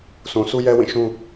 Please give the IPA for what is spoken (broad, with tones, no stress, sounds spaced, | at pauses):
sʰ ũ˨ s u˦ j ɛ˦ w ĩ˦˨ ʃ ũ˦